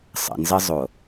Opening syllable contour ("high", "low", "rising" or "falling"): low